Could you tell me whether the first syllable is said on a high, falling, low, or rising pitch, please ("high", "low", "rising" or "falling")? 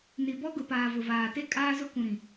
low